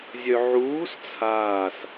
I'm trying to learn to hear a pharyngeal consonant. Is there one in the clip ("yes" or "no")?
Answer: yes